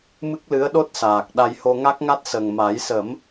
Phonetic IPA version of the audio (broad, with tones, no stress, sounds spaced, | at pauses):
m ɨ˦˥ k̚ l ɨ˧˥ ə̯ ɗ o˦˥ t̚ s aː˨˩ k̚ ɗ a˧ j h o˧ ŋ a˦˥ k̚ ŋ a˦˥ t̚ s ə˨˩ ŋ m a˨˩˦ j s ə˨˩˦ m